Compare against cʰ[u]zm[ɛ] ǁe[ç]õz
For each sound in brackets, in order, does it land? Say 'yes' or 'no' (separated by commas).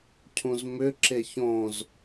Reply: no, no, yes